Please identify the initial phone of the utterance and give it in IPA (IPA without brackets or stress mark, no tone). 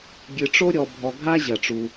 ɡʲ